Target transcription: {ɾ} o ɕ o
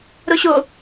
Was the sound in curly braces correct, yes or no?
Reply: yes